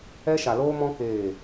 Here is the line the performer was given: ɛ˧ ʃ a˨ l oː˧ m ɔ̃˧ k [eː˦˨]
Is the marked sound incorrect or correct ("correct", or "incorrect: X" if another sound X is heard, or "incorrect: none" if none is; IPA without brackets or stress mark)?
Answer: correct